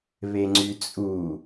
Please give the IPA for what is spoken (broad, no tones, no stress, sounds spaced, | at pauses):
β e ŋ͡ǀ y t͡sʼ u